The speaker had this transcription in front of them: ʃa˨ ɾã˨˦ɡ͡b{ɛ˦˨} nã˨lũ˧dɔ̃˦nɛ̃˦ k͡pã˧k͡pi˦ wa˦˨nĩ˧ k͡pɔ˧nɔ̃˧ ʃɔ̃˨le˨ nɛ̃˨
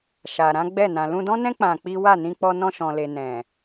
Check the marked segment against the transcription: correct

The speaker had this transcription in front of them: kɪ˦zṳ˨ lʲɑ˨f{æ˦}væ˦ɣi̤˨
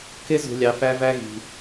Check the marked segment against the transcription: correct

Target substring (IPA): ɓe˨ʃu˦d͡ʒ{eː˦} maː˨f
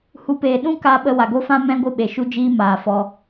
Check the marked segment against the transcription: incorrect: iː˦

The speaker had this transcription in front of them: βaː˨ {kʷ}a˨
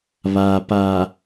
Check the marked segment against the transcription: incorrect: p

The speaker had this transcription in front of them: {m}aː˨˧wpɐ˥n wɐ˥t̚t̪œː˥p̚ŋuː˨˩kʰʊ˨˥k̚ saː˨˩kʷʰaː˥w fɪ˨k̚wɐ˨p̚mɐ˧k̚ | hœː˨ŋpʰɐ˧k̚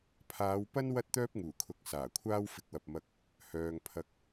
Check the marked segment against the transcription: incorrect: pʰ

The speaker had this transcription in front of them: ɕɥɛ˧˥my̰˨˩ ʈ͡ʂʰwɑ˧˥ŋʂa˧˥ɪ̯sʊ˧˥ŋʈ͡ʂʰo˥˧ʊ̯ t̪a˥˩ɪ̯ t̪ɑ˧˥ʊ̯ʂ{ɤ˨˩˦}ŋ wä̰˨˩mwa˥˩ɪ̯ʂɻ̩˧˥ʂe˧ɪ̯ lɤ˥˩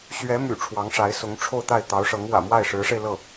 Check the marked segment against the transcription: incorrect: ɤ˧˥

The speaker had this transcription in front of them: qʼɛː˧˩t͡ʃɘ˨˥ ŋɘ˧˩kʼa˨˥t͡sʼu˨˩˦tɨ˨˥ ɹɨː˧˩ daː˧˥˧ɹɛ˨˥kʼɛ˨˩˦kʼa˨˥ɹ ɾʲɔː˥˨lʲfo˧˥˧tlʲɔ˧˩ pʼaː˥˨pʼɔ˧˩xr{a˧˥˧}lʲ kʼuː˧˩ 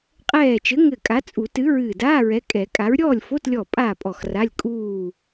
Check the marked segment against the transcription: correct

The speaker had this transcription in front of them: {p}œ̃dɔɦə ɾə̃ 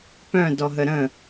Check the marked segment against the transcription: correct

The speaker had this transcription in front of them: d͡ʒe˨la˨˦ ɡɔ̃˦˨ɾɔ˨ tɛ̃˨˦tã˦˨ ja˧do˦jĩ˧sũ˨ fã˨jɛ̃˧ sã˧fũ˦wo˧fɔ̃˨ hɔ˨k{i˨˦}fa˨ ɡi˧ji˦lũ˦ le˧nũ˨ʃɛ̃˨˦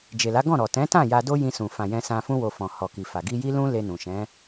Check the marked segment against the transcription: incorrect: i˨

